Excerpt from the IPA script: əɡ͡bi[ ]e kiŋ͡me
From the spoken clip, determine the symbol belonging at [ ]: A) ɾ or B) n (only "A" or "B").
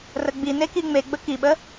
B